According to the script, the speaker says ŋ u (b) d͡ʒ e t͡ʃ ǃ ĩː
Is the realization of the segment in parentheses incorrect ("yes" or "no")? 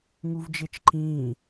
yes